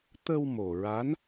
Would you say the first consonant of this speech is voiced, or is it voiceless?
voiceless